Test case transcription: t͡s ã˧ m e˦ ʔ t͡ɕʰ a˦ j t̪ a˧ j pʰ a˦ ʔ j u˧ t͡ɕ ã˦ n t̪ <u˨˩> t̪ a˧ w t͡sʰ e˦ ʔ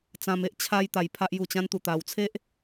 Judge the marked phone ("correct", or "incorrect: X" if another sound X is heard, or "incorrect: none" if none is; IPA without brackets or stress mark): incorrect: u˧